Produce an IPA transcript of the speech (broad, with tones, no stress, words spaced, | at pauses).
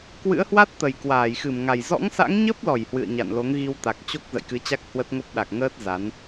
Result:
kwɨ̰˧˥ə̯hwa˦˥t̚t̪ə˨˩j kwaː˧˩jxɨ˧˩m ŋa˨˩j zɔ̰˧˥ŋsa̰˧˥ŋɲə˦˥p̚lɔ˧˩j hwɨ̰˧˨ə̯ɲa̰˧˨nlo˨˦ŋ ɣi˧wt̪a˨˩k̚t͡ɕo˦˥k̚ zə̰˧˨jkɨ˨˦t͡ɕa˦˥k̚ hwə˦˥t̚ ŋo˦˥p̚ ɗa˨˩k̚ŋəː˦˥t̚ za˨˦n